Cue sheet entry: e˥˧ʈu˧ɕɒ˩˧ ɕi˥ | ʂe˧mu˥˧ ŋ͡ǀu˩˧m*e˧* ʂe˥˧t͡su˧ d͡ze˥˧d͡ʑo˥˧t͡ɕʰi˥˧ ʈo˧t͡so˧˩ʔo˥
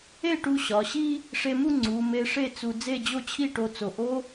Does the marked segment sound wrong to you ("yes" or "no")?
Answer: no